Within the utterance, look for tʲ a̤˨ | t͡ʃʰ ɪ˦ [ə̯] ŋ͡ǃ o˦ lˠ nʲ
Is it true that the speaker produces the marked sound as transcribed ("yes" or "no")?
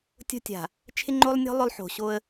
no